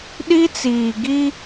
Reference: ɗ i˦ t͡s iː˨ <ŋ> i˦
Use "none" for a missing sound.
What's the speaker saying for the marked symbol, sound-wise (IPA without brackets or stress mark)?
ɡ